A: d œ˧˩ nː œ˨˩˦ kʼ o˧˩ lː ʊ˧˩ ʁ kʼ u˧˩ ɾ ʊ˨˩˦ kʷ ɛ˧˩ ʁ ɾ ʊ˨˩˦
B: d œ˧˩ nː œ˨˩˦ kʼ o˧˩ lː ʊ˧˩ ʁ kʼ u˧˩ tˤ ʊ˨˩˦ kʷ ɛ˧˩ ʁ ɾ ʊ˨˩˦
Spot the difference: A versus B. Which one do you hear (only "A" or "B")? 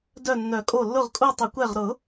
B